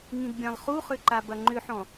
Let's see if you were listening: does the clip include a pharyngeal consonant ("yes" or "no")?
yes